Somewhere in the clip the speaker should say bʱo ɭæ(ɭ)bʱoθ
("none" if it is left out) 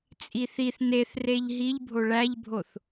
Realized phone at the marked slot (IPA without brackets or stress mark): ʎ